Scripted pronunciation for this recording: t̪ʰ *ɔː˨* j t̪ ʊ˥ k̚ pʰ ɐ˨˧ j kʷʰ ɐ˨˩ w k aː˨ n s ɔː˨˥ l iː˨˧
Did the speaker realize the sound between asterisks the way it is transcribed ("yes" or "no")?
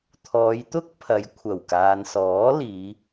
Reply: no